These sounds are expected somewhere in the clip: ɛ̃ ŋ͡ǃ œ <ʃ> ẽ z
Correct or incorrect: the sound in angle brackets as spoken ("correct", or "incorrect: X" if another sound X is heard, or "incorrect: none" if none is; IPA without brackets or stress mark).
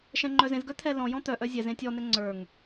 incorrect: z